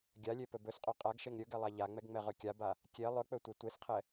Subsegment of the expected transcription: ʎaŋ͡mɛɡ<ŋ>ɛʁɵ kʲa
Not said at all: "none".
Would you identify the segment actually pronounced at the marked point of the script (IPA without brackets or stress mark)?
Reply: ŋ͡m